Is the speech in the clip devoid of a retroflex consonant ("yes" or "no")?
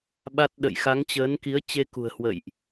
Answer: yes